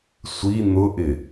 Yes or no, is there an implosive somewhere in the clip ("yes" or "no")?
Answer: no